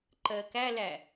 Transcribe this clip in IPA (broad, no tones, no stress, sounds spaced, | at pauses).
ǃ ɜ k æ l æ